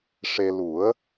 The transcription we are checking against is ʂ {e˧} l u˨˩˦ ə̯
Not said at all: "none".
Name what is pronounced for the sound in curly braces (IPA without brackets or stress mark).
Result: e˧